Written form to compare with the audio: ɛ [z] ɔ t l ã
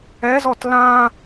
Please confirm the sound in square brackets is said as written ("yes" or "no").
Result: yes